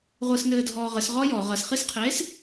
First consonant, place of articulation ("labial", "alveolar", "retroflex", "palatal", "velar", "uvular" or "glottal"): uvular